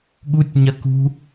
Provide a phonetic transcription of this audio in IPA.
ɠ u tʲ ɲ ɐ k ṳ

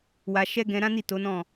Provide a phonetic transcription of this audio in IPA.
w a˧ ʃ ɛ˦ ɡ ɛ̃˧ ɾ ã˦ n i˦˨ t o˨˦ n ɔ̃˦˨

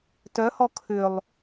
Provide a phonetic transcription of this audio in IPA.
t œ h ɔ kʰ ʏ lˠ

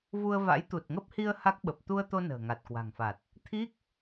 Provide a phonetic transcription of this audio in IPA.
v u˧ ə̯ v a̰˧˥ j t̪ u˨˩ t̚ ŋ ə˦˥ p̚ h i˧ ə̯ h a˦˥ k̚ ɓ ə˨˩ p̚ t̪ u˧ ə̯ t̪ o˧ n ə̤ː˨˩ ŋ a˨˩ t̚ k w a̤˨˩ ŋ f a˨˩ t̚ | t̪ʰ i˦˥ k̚

